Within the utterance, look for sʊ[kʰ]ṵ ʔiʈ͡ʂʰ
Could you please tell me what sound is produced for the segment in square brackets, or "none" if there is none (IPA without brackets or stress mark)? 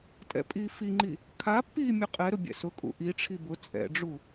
kʼ